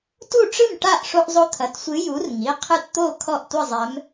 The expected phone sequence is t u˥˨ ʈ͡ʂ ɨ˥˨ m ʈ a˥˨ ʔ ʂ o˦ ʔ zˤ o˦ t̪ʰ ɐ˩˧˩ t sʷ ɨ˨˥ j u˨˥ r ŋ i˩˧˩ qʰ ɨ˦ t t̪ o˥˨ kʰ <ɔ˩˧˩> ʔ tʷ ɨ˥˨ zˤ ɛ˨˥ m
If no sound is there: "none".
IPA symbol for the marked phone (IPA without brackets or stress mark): ɔ˥˨